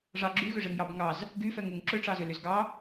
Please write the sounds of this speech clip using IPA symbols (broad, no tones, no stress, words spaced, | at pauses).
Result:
ʐɑ ɡ͡ǁyɣʏʐeŋjɑb ŋɑz | ɡyfɛŋuŋ ǁʏʈ͡ʂɑzʏ lʏzɡɑ